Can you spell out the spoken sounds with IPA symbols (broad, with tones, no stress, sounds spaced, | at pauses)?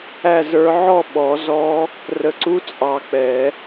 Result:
æ˥˨ z ə˞˧˥ ʕ ɔ˥˨ ɓ ɔ˨˩˦ z ɔ˧˥ | r ə˨˩ ǀ u˧˥ t͡sʼ ɑ˨˩˦ k͡p ɛ˨˩˦